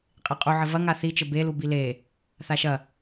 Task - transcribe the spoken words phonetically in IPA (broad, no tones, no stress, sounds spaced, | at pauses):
qʼ e qʼ u ʕ ɘ v ɐ ŋ a θ i t͡ʃ ɘ b e l u b i l e | θ a ʃ ɐ